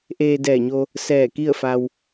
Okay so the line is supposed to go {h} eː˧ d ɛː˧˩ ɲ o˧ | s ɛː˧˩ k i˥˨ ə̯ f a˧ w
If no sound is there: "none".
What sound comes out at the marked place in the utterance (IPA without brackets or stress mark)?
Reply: ʔ